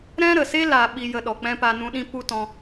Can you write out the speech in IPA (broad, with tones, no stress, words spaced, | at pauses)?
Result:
ɾɛ̃˦ɾə˨se˦ la˨ ɓi˧jə˧ɗɔ˨ k͡pɛ̃˦pa˧ nũ˧ɗĩ˦ pu˦tɔ̃˧